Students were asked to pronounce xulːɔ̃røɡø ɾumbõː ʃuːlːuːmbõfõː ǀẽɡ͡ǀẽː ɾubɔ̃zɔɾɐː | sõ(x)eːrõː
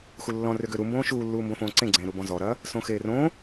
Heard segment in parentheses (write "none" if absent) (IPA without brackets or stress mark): x